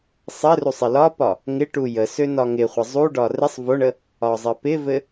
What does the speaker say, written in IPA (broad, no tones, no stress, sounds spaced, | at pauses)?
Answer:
sˤ ɘ r u sˤ ɪ l ɒ p ɒ | ŋ ɪ ʈ u j ə s ø n ɒ ŋ ɪ χʷ ɪ zˤ u ɖ ɒ r ɪ sˤ v o ɳ ə | ɒ zˤ ɘ p ɪ v ɘ